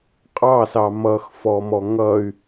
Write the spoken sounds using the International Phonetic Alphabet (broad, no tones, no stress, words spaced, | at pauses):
qʼɑsɑ mʌxfɔmɔ ŋʌy̯